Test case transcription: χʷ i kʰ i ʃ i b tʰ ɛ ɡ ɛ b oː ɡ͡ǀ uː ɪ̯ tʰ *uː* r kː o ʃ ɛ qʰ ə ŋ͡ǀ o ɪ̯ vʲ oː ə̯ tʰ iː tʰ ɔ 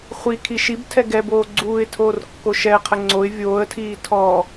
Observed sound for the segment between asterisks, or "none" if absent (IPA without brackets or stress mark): oː